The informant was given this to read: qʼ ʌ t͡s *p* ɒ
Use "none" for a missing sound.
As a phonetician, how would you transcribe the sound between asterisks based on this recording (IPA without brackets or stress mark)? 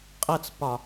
p